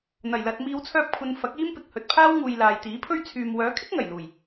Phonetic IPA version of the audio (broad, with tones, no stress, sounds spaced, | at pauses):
n̪ ɐ˨˩ j l ɐ˨ t̚ m iː˨˧ w t͡sʰ œː˧ p̚ kʷʰ ɐ˨˧ n f ɐ˨˥ k̚ iː˥ m p ɪ˨ k̚ h ɵ˨ t̚ pʰ aː˥ w ŋ uː˨ j l aː˨ j t̪ iː˨˥ pʰ ɵ˥ ɥ t͡sʰ yː˨ m w œː˨˥ kʰ ɪ˥ k̚ ŋ ɐ˨˩ j l uː˨˩ j